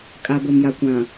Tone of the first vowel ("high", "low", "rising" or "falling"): low